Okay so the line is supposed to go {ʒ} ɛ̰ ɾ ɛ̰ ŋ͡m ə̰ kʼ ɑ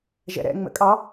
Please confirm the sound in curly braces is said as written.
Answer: yes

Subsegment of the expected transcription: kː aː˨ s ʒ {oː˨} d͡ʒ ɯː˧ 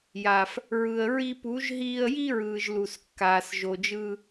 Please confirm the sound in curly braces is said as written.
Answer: no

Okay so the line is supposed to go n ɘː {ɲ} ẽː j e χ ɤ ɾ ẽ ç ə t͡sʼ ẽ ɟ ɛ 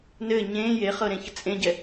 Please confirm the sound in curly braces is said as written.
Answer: yes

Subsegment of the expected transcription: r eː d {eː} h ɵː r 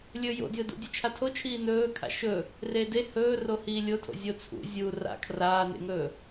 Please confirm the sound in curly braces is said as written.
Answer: no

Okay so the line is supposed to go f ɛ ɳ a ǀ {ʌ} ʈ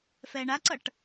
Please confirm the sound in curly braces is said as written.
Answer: yes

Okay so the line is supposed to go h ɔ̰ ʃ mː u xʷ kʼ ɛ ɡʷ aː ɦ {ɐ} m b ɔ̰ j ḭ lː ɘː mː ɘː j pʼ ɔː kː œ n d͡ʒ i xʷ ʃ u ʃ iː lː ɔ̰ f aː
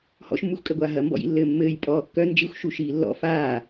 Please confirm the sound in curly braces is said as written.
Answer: yes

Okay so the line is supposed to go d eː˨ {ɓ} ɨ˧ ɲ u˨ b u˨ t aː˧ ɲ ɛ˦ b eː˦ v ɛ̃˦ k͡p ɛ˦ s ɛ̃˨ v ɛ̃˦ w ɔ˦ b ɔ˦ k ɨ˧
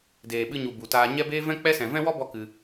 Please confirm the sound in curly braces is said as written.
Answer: yes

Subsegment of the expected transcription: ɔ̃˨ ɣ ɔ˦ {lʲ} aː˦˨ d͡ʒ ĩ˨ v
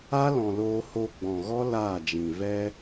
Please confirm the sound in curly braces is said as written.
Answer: no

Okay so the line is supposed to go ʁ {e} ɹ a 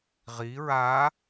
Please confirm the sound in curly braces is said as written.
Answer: no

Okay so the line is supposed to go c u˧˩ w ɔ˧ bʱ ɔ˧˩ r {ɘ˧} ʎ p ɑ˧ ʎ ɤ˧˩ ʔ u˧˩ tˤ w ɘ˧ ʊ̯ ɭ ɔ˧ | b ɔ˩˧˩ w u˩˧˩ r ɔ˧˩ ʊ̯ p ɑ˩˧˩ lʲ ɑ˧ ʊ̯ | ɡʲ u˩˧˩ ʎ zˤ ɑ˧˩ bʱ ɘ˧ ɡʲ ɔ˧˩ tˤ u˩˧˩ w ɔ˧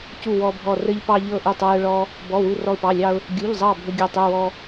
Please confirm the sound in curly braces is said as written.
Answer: yes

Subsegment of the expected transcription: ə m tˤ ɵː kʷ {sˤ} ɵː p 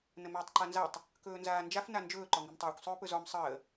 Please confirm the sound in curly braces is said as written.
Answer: yes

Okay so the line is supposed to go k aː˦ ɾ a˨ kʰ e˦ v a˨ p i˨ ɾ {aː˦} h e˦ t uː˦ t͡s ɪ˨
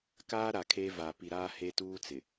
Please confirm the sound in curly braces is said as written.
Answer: yes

